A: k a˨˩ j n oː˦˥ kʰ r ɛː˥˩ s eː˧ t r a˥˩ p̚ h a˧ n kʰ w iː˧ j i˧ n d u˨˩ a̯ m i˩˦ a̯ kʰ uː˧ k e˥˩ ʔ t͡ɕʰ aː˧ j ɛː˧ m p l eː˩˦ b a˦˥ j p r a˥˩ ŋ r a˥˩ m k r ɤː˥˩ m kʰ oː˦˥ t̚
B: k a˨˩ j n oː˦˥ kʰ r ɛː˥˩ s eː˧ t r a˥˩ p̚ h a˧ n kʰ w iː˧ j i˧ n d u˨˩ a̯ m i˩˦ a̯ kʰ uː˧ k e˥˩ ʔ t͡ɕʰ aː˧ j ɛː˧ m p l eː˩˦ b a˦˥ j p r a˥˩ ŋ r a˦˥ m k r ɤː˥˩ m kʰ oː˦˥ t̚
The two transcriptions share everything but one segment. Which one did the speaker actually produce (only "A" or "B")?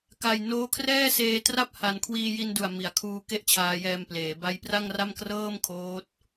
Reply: A